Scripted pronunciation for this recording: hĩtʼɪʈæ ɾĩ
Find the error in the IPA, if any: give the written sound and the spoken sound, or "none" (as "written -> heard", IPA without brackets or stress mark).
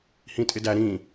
ʈ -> d